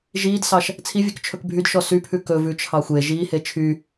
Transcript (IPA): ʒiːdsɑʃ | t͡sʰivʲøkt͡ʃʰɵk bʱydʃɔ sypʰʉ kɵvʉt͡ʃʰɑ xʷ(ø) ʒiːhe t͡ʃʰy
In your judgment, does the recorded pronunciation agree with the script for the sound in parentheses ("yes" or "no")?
no